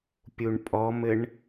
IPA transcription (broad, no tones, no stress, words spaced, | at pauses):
pʲuɳpʼɔmɘɳ